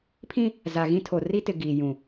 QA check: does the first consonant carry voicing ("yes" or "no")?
no